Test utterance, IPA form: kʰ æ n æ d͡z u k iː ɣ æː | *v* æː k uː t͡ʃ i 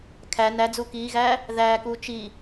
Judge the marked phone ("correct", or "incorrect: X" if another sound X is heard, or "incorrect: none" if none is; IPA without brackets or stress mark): incorrect: ð